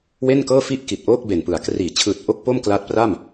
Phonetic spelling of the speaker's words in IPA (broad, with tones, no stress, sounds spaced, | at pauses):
w e˥˩ n k ɤː˥˩ f i˥˩ ʔ k i˨˩ t̚ ʔ oː˥˩ k̚ b e˨˩ n p ɯ˩˦ a̯ k r iː˩˦ t͡ɕʰ ɯː˨˩ t̚ ʔ o˥˩ k̚ p o˥˩ m k l a˦˥ t̚ p r a˥˩ m